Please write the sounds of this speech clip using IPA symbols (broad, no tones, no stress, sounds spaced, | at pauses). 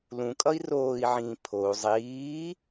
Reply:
l ũ kʼ ʌ i̯ r oː i̯ ʕ ĩː pʰ o u̯ zˤ iː